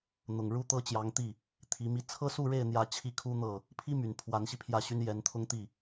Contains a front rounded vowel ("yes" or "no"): yes